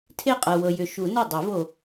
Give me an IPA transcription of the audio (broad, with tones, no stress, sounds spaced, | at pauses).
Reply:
tʰ e˥˩ qʼ ɤ˨ w ɤ˨ j ʏ˨ ʃ u˨˩˦ n u˥˩ dˤ e˨˩˦ v o˨